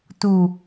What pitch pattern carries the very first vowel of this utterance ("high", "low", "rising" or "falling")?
low